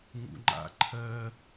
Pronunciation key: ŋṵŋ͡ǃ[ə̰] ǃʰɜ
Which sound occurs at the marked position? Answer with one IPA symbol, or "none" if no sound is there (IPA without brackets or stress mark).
a̰